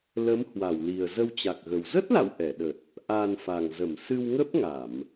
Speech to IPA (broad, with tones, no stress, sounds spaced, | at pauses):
l ə˨˦ m h w a˧˩ w l i˨˩ ə̯ z ə˧ w t͡ɕ a˨˩ k̚ ɣ ə˨˩ w z ə˦˥ t̚ l a̰˧˨ w ʔ ɛ˧˩ ɗ ə˨˩ t̚ | ʔ a˨˩ n f a˨˩ ŋ z ə˧˩ m s ɨ˧ w ŋ ə˦˥ p̚ ŋ a˧˩˨ m